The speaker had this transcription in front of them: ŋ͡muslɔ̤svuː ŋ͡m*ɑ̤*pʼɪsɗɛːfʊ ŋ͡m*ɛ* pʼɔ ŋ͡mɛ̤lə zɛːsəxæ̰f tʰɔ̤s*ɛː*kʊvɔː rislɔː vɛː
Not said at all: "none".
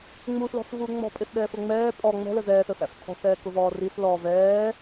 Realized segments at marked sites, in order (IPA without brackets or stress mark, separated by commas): ɔ̤, ɛː, ɛː